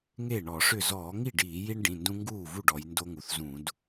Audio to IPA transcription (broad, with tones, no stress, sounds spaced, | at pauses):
ŋ e˥˩ ɳ ɔ˧˩˧ ʂ ʏ˥˩ z ɔː˧˩˧ ŋ i˥˩ ɖ iː˧˩˧ j i˦ ɳ ɖ ĩ˩˧˩ n d ũ˦ ŋ ɡ uː˥˩ v u˥˩ ɖ ɔ˩˧ j n d o˦ ŋ u˩˧ θ z ũ˧˩˧ d